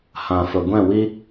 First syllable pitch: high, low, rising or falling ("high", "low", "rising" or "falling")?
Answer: low